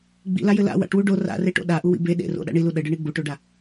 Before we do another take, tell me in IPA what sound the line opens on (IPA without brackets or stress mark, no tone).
ɡ͡b